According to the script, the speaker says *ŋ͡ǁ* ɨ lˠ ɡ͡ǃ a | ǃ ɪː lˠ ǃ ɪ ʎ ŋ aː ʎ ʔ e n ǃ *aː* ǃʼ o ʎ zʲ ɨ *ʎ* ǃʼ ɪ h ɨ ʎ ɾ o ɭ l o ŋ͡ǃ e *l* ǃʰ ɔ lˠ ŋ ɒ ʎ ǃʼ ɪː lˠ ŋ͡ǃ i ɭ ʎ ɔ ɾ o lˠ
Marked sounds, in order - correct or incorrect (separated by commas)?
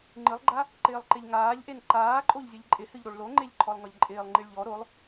incorrect, correct, correct, incorrect